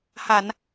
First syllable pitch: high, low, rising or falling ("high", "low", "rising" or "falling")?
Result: low